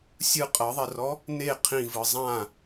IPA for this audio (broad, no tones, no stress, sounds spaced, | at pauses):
sʲ ɯ qʼ ɤ ðˤ ɛ r ɔ | n e qʰ ĩ v ɯ zˤ ã